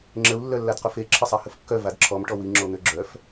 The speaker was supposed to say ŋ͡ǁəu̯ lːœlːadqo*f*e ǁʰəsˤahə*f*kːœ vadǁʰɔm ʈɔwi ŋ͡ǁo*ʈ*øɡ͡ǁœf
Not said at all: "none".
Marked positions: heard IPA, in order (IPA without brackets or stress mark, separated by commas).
f, f, n̪